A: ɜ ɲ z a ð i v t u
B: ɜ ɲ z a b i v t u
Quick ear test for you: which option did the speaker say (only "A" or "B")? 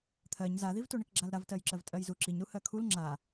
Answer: A